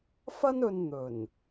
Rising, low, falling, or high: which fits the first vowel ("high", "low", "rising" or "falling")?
high